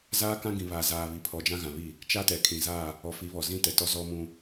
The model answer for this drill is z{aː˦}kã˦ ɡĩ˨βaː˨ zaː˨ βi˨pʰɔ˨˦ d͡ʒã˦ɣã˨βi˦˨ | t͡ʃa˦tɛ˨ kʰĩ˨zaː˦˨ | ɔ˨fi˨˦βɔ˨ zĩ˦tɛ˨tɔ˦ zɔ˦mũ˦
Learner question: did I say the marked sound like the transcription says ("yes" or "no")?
yes